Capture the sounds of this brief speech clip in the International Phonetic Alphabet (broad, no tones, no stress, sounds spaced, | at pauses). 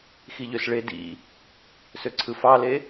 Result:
x i ʎ ø s ɭ e d ḭ | s ø ǀʰ ɯ f ɑ l e